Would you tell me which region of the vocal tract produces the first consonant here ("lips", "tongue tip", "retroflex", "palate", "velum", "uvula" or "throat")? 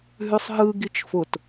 throat